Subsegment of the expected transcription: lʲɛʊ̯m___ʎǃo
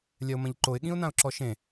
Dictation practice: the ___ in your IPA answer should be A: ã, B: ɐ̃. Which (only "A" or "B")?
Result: B